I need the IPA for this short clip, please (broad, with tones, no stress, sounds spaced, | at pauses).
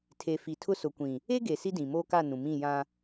tʰ e˨ f i˨ tʰ ʊ˦ s ʊ˨ kʷ ĩ˨ | e˦ ɡ e˨ s i˦ d ĩ˨ m oː˦ k a˦˨ n ũ˨ m ĩ˦˨ j ã˦